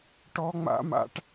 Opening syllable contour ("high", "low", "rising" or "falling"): high